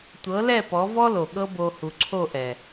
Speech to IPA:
tʷ ɤ˨˦ l ɛ˦˨ p ɔ˨˦ v ɔ˦ l o˨ ɠ ɤ˦ b o˧ h u˨ ǀʰ o˦˨ ʔ ɛ˨

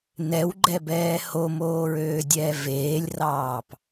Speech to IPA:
n ɛ w ɡ͡ǃ ɛ b ɛː h o m oː ɹ øː dʲ ɛː v eː lʲ r ɑː p

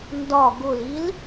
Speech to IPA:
n d ɒ ɡ ʊ l i l

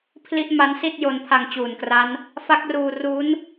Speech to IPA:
pʰ l i˥˩ ʔ m a˦˥ n s i˥˩ t̚ j o˧ n pʰ a˧ ŋ t͡ɕ uː˨˩ n k r a˦˥ n | f a˦˥ k̚ r uː˧ r u˦˥ n

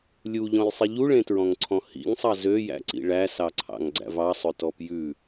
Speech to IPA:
lʲ u ʎ ɔ̃ j sˤ i ʎ u ɭ ẽ t ɹ ɔ̃ ŋ ǀʰ ɔ̃ h ḭ ŋ sˤ ɑ z ø j æ̰ ǀ ḭ ɭ æ s ɑ ǀʰ ɑ̰ ŋ ɡ͡ǀ æ̰ v ɑ sˤ ɵ t ɔ p j ʉ

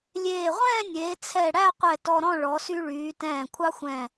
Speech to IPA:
lʲ eː˧˩ ʁʷ ɛ̃ː˥˧ nʲ eː˩˧ t͡sʰ ɛ˧˩ ɽ æ˥˧ qʷ ɛ˧˩ t ɔ˧ ɾ ɔ̃˥˧ ɭ ɔ˩˧ s y˧ ɭ yː˩˧ t ɛ̃ː˧˩ kʷʰ ɑ˥ xʷ ɛ̃˧˩

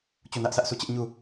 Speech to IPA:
t͡ɕ u˦˨ n ä˦ ʔ s ä˦ ʔ sʰ u˦˨ t͡ɕ ɪ˦ ʔ ɲ u˦˨

